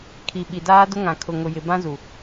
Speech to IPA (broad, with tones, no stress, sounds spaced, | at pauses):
kʰ i˨ ɓ i˨ d aː˦ d ʊ˦ ŋ ã˨ kʰ ʊ˨ ŋ ʊ˨ j ɪ˨ b ã˦ z u˨